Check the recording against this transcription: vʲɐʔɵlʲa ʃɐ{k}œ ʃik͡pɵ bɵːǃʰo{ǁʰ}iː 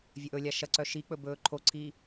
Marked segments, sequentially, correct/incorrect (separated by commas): incorrect, incorrect